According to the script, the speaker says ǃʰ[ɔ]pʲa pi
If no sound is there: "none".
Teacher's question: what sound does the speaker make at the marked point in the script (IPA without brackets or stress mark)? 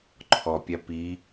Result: ɔ